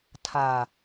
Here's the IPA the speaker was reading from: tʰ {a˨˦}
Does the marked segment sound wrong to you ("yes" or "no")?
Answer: yes